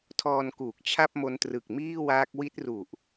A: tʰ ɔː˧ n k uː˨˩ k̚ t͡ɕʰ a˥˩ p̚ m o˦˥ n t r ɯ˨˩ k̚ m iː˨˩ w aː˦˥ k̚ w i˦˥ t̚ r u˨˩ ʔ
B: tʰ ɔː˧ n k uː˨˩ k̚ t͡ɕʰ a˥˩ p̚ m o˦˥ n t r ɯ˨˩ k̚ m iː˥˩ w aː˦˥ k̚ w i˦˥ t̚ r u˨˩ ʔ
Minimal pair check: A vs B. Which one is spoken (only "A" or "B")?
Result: B